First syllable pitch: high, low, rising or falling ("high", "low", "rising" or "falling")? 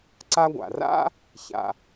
high